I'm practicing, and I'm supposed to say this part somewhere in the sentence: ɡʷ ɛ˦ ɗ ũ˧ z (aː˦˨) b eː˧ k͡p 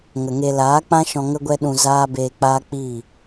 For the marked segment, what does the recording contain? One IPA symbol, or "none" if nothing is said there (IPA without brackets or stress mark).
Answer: aː˦